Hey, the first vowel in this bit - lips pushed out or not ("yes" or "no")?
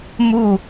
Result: yes